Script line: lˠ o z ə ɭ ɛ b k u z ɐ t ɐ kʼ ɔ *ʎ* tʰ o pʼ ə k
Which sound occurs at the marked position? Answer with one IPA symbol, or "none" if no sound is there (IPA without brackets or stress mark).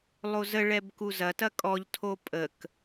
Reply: ʎ